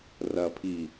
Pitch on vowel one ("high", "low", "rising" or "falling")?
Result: low